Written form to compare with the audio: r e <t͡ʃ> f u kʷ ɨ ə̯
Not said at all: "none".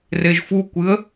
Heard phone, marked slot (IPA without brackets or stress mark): ʒ